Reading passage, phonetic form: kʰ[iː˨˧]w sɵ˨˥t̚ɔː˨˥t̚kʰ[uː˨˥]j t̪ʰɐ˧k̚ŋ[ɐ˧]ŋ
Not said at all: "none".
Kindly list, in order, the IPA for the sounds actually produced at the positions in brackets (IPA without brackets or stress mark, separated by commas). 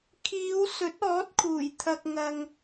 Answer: iː˨˧, uː˨˩, ɐ˧